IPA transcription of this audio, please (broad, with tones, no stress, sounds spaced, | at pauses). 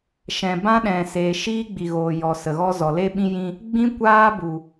ʃ ɛ̃˨ b ã˦ ɗ ɛ̃˨ s eː˨ ʃ iː˦ ɡ͡b i˨ ɣ oː˨ j ɔ˨ s ə˨ ɣ ɔ˦ z ɔ˨ l e˦ ɓ ĩ˦ j ĩ˧ | ɡ͡b ĩ˦ kʷ aː˦ b u˨